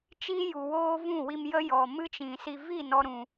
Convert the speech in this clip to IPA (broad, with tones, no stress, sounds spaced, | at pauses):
t͡ʃ i˦ j u˨ w oː˦ v ũ˦˨ w i˧ m j ə˦ j ɔ˨ m ɨ˦ t͡ʃ ĩ˨ s i˧ v i˦˨ n ɔ˦ ɾ ũ˧